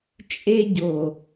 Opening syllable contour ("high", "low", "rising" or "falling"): high